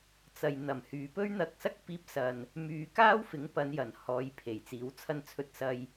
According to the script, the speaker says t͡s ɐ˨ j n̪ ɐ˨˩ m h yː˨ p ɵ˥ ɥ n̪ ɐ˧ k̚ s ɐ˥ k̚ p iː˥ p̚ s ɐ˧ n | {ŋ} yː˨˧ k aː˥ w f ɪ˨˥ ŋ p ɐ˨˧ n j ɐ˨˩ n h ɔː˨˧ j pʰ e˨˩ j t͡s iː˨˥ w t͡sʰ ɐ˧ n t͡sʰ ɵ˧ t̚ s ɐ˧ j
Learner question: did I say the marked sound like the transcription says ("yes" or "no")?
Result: no